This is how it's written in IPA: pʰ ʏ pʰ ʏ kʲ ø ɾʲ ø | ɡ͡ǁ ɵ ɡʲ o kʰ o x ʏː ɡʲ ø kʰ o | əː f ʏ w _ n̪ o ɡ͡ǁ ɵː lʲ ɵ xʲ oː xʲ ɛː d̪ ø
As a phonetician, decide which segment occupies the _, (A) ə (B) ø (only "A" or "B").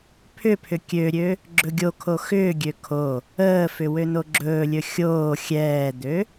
B